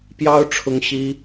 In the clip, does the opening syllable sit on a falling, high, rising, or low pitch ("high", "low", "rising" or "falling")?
high